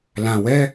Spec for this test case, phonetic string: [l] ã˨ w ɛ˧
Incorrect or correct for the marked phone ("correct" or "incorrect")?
correct